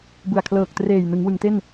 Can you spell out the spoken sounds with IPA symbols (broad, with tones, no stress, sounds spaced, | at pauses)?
b ɯ˨˩ a̯ kʰ l ɤː˨˩ k̚ t r eː˨˩ j n ɯ˩˦ ŋ w ɯ˩˦ ŋ t e˥˩ n